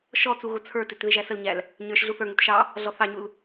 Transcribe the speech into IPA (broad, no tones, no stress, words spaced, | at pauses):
ʃɔt͡su ɣʊt͡sʰə˞tɪt ðɪʒæsəlɲæl | ɲə˞ʃ ɮuθə˞ŋut ʃɑ | ɮɔθɑɲul